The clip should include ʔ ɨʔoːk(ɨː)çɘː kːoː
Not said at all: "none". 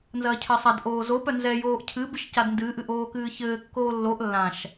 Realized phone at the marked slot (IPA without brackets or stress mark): ɨː